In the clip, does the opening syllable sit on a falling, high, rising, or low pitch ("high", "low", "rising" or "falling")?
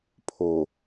low